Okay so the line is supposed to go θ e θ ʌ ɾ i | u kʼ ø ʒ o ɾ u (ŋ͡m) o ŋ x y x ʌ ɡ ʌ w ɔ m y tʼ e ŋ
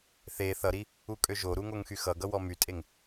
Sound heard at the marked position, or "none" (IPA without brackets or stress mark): ŋ